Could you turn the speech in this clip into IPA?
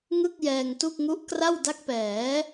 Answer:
ŋ ɯ˥˩ k̚ j ɛː˧ ŋ t u˥˩ k̚ ŋ u˦˥ ʔ k r a˥˩ w d a˦˥ k̚ p ɛː˩˦

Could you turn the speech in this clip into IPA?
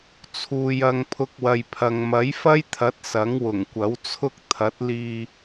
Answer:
t͡sʰ uː˨ j ɐ˧ ŋ pʰ ʊ˧ k̚ w ɐ˨ j pʰ ɐ˨ ŋ m ɐ˨˥ j f ɐ˥ j t̪ʰ ɐ˨˥ t̚ s ɐ˨˥ ŋ w ʊ˨˩ ŋ kʷ ɐ˨˥ w t͡sʰ ʊ˥ k̚ t̪ʰ ɐ˨˥ t̚ l iː˧

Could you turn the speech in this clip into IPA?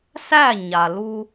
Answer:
s æ˦˨ ɲ a˨ l u˦

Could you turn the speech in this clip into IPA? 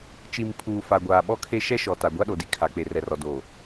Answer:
t͡ʃ i˨ m pʰ uː˨ f a˨ ɡʷ aː˨ ɓ ɔ˦ kʰ e˦ ʃ ɛ˦ ʃ ɔ˨ t a˨ ɡʷ a˦ ɗ o˨ d i˦ kʰ a˨ k͡p e˨ r ɛ˨ r ɔ˨ d o˨

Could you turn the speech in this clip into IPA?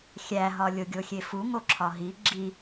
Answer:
xʲ æ ɦ ɒ lʲ o ɡʲ o xʲ e f u ŋ o ǁʰ ɒ ɦ i ɡ͡ǁ i

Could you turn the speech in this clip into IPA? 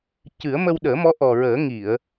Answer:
c ɨ˨˩˦ ə̯ m ə˧ w ɗ əː˨˩˦ m ɔ˧˥ ʔ ɔ˨˩ ɹ əː˨˩˦ ŋ i˨˩˨ ə̯

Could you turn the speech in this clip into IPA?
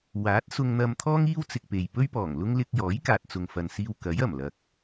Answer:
w aː˨˥ t̚ s ʊ˧ ŋ n̪ ɐ˧ m t̪ʰ ɔː˥ ŋ iː˥ w t͡s ɪ˨ k̚ p e˨ j p ɵ˥ ɥ p ɔː˨˩ ŋ l ʊ˥ ŋ l ɪ˧ k̚ j ɔː˨˥ j k aː˨ t̚ t͡s ʊ˨ ŋ f ɐ˨ n s iː˧ w k ɐ˨˥ j ɐ˨˩ m l ɐ˨ k̚

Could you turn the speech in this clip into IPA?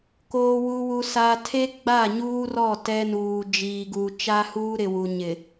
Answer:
k oː˨ w u˨ w u˨ s a˨ tʰ e˦ ɡ͡b a˦˨ ɲ uː˦ r ɔ˦˨ t ɛ˦ n uː˨ d͡ʒ iː˨ ɡ u˨ t͡ʃ a˦ h uː˦ ɾ ɪ˨ w u˨ ɲ ɪ˨

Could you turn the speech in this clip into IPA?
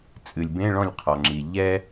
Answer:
t͡sʼ ɨ˩ lʲ b ẽ˧˥˧ ɭ ɔ̃˥˩ lʲ qʰ ɔ˩ ŋ͡ǁ i˩ ʎ ɛ˥

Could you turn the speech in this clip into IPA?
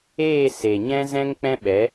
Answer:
eː˦˨ s e˨ ɲ ɛ̃˦ z ɛ̃˦ ŋ k͡p ɛ̃˦ ɓ ɛ˨˦

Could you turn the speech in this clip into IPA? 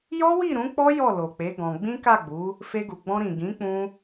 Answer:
j ɔ˦ w i˦˨ ɾ ũ˨˦ k͡p ɔ˦ j ɔ˦˨ l o˨ k͡p e˨˦ ɡ ɔ̃˧ ɡ͡b ĩ˦ k a˦˨ ɡ͡b u˨˦ | f e˧ ɡ u˨ ɡ͡b ɔ̃˧ ɾ ĩ˨ ɡ ĩ˨˦ k͡p ũ˧

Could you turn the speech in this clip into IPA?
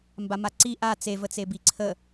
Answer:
m b a m a ǀ i ʔ a t͡s e v ə t͡s e b i ǀʰ ə

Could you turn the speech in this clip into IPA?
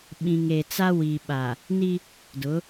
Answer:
ɓ ĩ˨ ŋ e˨ t͡s a˦ w i˨ ɓ a˨ | n i˦ | d ʊ˨˦

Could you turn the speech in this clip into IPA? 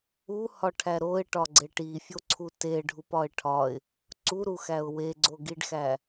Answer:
u h ɒ ʈʰ æ ɾ o ɪ̯ ʈ ɒ ɡ͡ǀ e ʈ i fʲ o ǀʰ u t e ɖʱ u p ɒ ɪ̯ ʈʰ ɒ ɪ̯ | ǀ u ɾ u x æ ʊ̯ w e ɡ͡ǀ o ɡ i ɖ x æ

